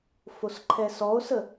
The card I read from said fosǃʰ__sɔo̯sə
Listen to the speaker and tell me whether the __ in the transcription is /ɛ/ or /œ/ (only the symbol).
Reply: ɛ